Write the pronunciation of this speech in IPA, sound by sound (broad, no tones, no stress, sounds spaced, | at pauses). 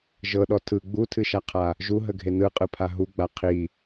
ʒ ɤ ɗ ɔ tʰ ɯ ɡ͡b u tʰ ɨ ʃ a qʰ a | ʒ u ɦ ə ɡʱ e n ɯ qʼ ɯ pʰ a ɦ u ɡ͡b a qʰ i